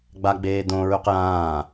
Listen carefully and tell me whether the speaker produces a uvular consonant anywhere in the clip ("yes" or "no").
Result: yes